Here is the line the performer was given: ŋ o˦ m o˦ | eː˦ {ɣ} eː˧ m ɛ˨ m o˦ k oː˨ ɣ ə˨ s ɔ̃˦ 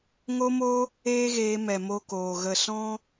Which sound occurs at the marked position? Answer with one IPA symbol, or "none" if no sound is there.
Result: ɣ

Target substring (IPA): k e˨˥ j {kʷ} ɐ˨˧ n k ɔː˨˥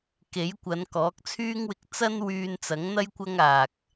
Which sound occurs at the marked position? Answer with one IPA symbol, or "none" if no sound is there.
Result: kʷ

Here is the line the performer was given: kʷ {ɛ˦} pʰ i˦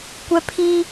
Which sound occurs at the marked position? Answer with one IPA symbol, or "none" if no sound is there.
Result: ɛ˦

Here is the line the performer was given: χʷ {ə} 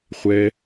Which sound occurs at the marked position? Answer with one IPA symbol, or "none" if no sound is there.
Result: ɛ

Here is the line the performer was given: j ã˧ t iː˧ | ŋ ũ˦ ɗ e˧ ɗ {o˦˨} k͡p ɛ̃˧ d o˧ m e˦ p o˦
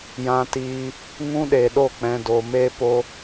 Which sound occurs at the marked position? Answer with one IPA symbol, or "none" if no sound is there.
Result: o˦˨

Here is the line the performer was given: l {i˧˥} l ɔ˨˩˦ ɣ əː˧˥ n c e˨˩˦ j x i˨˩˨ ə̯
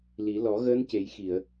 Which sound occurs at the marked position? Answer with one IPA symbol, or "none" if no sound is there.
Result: i˨˩˦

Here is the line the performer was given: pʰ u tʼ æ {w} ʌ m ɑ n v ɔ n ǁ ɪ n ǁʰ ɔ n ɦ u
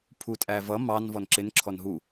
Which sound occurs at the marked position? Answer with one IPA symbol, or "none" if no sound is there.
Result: v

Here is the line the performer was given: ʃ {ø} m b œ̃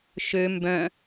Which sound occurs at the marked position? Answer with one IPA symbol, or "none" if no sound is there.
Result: ø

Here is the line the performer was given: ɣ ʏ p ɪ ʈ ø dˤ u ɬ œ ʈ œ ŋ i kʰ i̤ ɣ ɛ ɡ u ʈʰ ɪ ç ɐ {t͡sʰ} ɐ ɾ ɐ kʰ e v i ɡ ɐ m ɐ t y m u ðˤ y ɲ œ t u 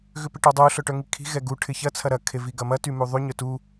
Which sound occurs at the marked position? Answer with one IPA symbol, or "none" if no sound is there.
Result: t͡sʰ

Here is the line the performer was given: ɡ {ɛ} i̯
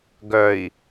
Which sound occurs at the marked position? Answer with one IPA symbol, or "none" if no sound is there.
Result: œ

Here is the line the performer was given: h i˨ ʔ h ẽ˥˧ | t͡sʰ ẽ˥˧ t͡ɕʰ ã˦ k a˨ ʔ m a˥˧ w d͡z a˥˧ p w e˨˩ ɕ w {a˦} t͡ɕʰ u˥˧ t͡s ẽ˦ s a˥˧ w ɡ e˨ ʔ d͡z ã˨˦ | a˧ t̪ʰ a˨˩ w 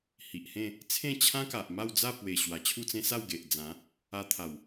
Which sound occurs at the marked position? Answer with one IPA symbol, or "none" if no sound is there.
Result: a˨˩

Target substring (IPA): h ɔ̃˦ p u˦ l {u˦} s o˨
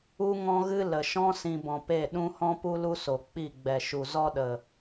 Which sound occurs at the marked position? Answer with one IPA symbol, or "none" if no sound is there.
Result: u˦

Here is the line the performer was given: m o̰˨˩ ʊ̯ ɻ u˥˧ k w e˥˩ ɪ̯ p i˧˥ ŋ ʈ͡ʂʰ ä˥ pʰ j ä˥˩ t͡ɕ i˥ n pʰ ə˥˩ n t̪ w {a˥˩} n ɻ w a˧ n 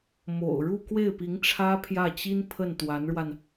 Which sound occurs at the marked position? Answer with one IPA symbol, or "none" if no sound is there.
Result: a˧˥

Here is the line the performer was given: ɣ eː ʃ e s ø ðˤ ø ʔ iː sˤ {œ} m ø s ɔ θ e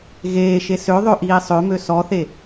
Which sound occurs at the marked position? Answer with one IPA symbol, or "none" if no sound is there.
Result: ø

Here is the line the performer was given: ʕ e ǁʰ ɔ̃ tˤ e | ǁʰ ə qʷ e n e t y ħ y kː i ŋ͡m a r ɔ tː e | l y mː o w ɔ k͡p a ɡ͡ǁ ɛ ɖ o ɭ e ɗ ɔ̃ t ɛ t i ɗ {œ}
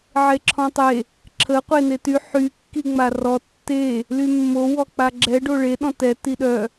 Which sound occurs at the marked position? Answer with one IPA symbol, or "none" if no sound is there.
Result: œ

